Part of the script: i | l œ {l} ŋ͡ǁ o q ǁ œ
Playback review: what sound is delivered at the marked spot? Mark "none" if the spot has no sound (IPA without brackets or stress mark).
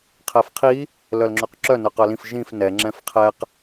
l